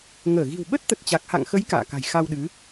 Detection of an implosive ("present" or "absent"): present